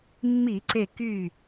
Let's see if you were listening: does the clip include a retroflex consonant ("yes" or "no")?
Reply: no